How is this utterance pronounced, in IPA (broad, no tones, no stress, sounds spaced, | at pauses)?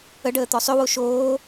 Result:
ə ɖ əː t̪ ɔ sˤ ø w o ʃ oː